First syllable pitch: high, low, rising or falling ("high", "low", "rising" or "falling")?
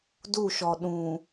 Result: falling